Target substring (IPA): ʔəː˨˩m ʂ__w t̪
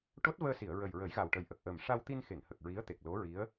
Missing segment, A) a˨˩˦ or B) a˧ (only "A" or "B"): B